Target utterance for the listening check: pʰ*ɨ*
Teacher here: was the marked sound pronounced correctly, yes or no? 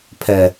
no